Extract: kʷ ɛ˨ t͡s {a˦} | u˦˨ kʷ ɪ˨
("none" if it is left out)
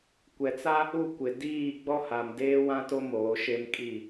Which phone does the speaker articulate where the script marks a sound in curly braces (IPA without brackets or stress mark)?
a˦